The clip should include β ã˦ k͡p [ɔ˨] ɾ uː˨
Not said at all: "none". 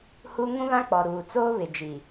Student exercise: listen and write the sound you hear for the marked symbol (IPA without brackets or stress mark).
ɔ˨